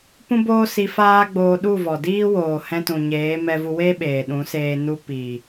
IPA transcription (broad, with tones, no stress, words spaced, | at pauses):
pũ˦boː˦si˧ faː˦ɡ͡boː˧ ɗu˦˨vɔ˨diː˦ woː˨ hɛ̃˧tũ˨ɲeː˨˦ mɛ˧vu˧we˦ ɓeː˨ɗũ˨˦seː˧ nu˧ piː˨